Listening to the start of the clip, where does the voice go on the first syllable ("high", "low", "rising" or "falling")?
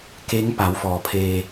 rising